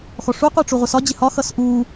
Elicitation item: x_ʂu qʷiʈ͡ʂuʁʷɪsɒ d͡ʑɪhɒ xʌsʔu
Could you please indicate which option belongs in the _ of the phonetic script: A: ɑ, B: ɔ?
B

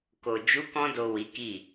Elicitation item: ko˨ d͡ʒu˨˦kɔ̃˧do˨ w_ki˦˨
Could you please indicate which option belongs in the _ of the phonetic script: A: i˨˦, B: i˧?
A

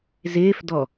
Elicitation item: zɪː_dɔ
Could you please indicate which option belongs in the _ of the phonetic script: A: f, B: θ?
A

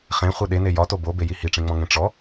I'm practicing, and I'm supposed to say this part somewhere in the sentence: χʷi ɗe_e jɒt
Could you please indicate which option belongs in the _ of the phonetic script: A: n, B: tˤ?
A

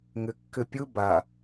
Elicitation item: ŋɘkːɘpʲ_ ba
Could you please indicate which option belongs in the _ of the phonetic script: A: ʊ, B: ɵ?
A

